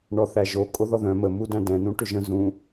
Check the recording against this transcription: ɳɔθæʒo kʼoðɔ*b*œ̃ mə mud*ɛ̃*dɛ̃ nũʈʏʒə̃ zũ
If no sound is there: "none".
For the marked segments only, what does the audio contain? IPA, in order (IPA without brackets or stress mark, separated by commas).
ð, æ̃